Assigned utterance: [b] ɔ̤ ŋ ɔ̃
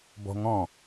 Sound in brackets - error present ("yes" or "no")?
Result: no